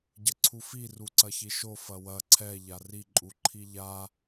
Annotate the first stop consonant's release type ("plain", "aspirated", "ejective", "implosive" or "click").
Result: plain